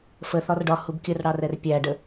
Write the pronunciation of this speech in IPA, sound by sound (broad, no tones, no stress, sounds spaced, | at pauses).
f ə θ ɒ r ɖ ɒ h u b kʲ ə r ɽ ɑ r ɛ r pʲ æ ɖ ə